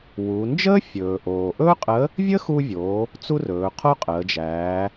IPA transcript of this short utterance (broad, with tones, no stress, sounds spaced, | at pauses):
w u˩˧ n d͡ʒ əː˥ fʲ ɵː˩ ʔ oː˩ ʔ ɵː˥ qʼ ə˧˥ | vʲ əː˥ x uː˧ vʲ oː˩˧ | t͡s u˥ r ɵː˩˧ qʰ o˥ qʼ əː˩˧ d͡ʒ æː˩˧